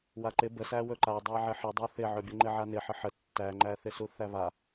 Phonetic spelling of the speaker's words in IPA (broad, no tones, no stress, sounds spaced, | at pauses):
w a ǃ ɪ b ə s æ w ɵ ǃ a dˤ æ ʕ ɪ ħ ə dˤ ɵ θ ɪ ʕ ɵ bʲ ə ŋ͡ǃ ɪ ʕ a n ɪ ħ ə ħ ə tː æ ŋ͡ǃ æ θ ɪ s u θ æ β a